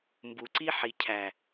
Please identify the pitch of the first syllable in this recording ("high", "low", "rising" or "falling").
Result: low